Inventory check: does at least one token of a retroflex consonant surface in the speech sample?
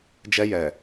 no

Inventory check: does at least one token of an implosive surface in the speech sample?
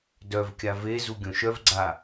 no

